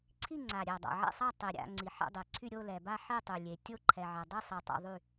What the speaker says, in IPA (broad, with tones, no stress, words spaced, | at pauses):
ǀʰi˥˨ ŋ͡ǀa˨˩ɾʲɛ˨˩dˤa̰˨˩ ʕɛ̰˥˨sˤa˥˨ tˤi˨˩ɾʲa̰˥˨ ŋ͡ǀi˨˩ħɛ̰˥˨dˤe˨˩ǀʰy˥˨ ɾʲo˥˨lɛ˨˩ba˥˨ ħi˥˨tˤy˨˩lʲe˨˩ tʲo˥˨ ǃʰɛ˨˩ʕɛ˨˩dˤi˥˨ sˤi˨˩ tˤa̰˥˨ðˤy˥˨